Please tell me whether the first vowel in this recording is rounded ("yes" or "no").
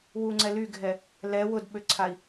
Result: yes